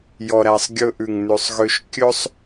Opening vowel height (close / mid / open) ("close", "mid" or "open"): mid